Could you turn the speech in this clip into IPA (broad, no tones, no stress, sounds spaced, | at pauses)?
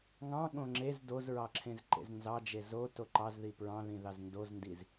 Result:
ŋ ɑ̃ ɠ õ ŋ͡ǁ e z d o z ɹ ɑ ǁʰ ẽ z ǃ ḛ z n z ɑ d͡ʒ e z o t o ǃ ɑ z ð i p ɹ ɑ̃ ð ĩ ð ɑ z n d o z n d i z